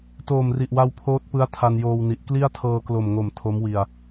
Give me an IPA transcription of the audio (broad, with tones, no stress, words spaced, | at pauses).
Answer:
toː˨˩mri˨˩ʔwa˧w pʰoː˦˥t̚pɯ˦˥a̯ tʰa˧njoː˧wni˨˩ʔ kli˥˩a̯tʰɤː˧ klo˨˩mŋo˨˩m tʰo˦˥mwi˧a̯